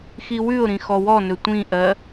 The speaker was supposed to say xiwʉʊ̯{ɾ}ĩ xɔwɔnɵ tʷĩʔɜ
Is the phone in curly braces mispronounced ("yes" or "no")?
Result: no